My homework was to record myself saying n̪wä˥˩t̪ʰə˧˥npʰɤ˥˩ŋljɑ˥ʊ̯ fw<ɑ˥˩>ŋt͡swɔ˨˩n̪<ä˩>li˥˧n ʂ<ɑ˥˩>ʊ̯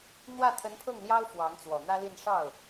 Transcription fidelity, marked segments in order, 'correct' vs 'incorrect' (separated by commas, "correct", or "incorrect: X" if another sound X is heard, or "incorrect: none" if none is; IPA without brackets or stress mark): incorrect: ɑ˧˥, incorrect: ä˥, correct